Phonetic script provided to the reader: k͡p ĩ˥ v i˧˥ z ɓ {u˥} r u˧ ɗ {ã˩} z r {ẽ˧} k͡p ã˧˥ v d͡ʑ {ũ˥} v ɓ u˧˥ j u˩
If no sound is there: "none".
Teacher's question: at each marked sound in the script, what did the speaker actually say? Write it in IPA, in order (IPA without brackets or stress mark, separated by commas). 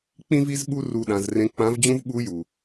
u˥, ã˩˧, ẽ˧˥, ũ˥